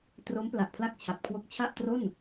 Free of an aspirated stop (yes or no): no